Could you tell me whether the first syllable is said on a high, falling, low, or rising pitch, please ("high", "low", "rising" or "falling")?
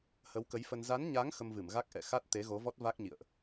rising